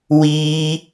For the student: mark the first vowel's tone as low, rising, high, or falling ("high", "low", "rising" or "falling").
high